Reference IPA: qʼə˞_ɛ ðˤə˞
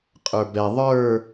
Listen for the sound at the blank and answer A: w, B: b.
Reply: B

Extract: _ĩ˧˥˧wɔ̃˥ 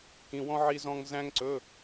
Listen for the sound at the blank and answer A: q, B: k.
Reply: B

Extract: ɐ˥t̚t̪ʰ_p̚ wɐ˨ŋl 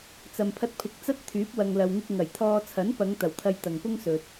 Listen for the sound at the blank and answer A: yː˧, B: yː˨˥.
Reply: B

